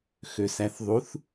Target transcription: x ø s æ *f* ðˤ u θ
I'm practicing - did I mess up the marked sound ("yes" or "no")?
yes